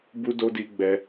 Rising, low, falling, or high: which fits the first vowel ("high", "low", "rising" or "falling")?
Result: high